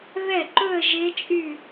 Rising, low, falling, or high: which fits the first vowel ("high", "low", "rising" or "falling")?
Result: falling